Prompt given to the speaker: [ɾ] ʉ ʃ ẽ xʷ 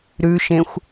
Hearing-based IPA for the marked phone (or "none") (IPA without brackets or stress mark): ɾ